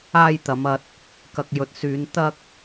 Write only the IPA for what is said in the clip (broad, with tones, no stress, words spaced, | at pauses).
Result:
aː˧jt̪ɐ˨˧m ɐ˧t̚ | kɐ˨k̚jɵ˨t̚syː˨˧n t̪ɐ˧k̚